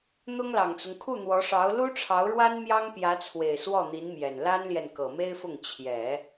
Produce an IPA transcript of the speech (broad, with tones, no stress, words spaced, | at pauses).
n̪ʊ˥ŋlɑ˨˩ŋt͡sʊ˦ŋ kʰu˥˩n̪wɔ˧˥ʂɑ˧˥ʊ̯ lu˥ʈ͡ʂʰɑ˧˥ʊ̯ɻwa˥n mjɑ˥ŋpjä˧˥t͡sʰwe˨˩ɪ̯ swɔ˥˩n̪i˧˥nmjɛ˨˩n la˥nljɛ˨n kɤ˨˩me˥ɪ̯fʊ˥˩ŋ t͡ɕʰjɛ˨˩˦